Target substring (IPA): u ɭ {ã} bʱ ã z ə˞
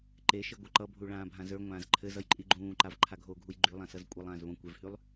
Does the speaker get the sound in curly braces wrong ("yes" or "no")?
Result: yes